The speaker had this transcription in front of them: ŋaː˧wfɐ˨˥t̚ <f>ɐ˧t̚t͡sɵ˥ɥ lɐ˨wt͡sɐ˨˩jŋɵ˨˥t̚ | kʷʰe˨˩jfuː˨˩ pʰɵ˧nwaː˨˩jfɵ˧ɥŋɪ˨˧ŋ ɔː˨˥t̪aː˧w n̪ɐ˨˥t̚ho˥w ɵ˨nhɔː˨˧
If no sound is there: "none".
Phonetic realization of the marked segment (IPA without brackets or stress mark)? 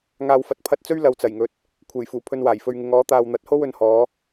pʰ